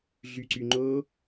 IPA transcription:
ɮ y ǀ y ŋ͡ǃ o

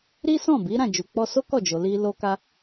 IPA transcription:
ɾ i˦ s ɔ̃˦˨ b i˨˦ ɾ ã˦˨ d͡ʒ u˨ k͡p ɔ˧ s o˦ k ɔ˦˨ d͡ʒ o˨ l i˧ l o˦ k a˦

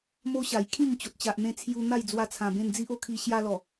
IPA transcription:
m o˦ ɕ a˨˩ j kʰ ĩ˥˧ ŋ t͡ɕ o˨ t̚ t͡ɕ a˨ ʔ n̪ ẽ˧ t͡sʰ j u˧ n̪ a˥˧ j d͡z w a˧ t͡sʰ ã˨˩ b ẽ˧ n d͡z i˦ ʔ o˦ kʰ i˧ ɕ j a˧ l ɔ˨˩

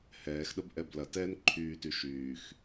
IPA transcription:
h ɛː x ɗ ə b ʔ ɛ b l ɐ t ɛː n ǃʰ yː t y ʃ yː x

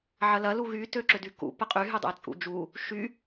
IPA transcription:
ʕ ɐ l ɐ l u ɣ y t ø ǁ ʏ d y k ṵ p ə qʼ y ɦ y dˤ ə̰ e̯ t͡sʼ ṵ d͡ʒ u | ʃ y

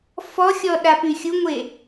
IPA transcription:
f ɔ xʲ ɔ ɗ a p y xʲ u ŋʷ e

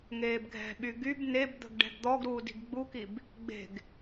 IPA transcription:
ŋ eː b ɡʱ ɛ̤ ɓ y ɡ y b n e b d̪ ə̤ ɡ ɖ ɛ̤ ɡ d̪ ɔ ɡ ɾ uː d i̤ ɡ ɡ͡b u k i b | ɡ͡b e̤ ɡ

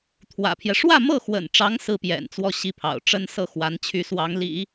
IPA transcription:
t̪ʰ w ä̰˨˩ pʰ j ɛ˦ ʂ w ä˥˧ m ɤ˥˩ x w ə̰˨˩ n ʈ͡ʂ ɑ˧˥ ŋ s ɹ̩˥ p j ɛ̰˨˩ n t͡s w ɔ˥˩ ɕ i˥ pʰ ɑ̰˨˩ ʊ̯ ʈ͡ʂ ə˥ n s ɤ˥˩ x w a˧˥ n t͡ɕʰ y˧˥ s w ɑ˧˥ ŋ l ḭ˨˩˦

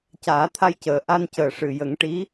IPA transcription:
c aː˨˩˦ t̪ʰ a˧ j c əː˨˩ ʔ a˧ n c əː˨˩ ʂ ɨ˨˩ j ə˨˩˦ ŋ ʈ i˧˥

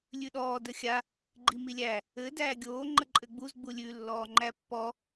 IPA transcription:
lʲ ʉ ɗ ɔː d ə xʲ a | ɡ͡ǃ i m i lʲ æ | ɘ d æː ɡʲ oː ŋ͡ǃ ə ǃʼ ɘ ɡ͡b u z ɡ͡b u lʲ ʉ lː ɔː ŋ͡ǃ æ pː ɔ

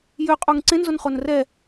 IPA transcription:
j ø qʼ u ŋ ǀ ẽ n z o n χ o n r ɛ

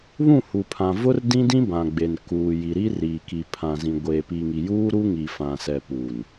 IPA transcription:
β ũ˦˨ h u˨ pʰ ã˨ v ʊ˦ r d ĩ˦ d ĩ˦ b ã˨ ɡ͡b e˨ n k uː˨ j i˨ ɾ iː˦ r iː˨ k i˨ pʰ ã˨ z ĩ˨ ɡʷ eː˨ p i˨ ŋ i˨ j uː˦ ɾ u˦ ŋ i˨ f ã˨ s ɛ˨ p uː˨ n

